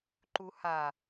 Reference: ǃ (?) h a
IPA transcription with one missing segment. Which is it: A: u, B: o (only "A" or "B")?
A